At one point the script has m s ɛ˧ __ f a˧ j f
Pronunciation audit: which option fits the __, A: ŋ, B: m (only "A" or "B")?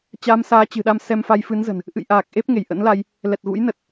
B